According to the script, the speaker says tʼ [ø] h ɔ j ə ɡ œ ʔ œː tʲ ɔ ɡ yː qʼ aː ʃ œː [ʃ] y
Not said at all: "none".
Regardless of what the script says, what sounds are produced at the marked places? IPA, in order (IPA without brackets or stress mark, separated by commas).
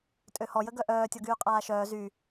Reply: ø, z